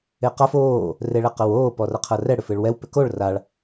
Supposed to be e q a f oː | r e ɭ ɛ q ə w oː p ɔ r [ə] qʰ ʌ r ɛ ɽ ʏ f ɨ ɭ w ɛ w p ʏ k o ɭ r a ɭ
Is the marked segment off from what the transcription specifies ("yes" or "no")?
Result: yes